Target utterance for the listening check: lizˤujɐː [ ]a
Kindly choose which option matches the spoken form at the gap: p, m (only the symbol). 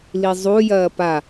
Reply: p